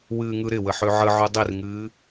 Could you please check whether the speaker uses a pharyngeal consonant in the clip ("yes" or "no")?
yes